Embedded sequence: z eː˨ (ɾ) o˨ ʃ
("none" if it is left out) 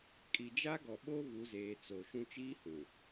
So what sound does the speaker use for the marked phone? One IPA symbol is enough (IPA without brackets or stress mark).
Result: t͡s